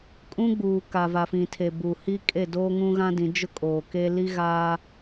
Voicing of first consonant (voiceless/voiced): voiceless